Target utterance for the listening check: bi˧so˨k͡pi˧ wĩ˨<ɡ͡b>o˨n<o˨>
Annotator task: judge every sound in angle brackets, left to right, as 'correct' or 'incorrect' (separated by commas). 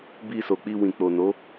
incorrect, incorrect